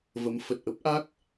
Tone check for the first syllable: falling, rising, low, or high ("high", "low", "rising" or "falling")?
rising